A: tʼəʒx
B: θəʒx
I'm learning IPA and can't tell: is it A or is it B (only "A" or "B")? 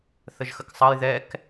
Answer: B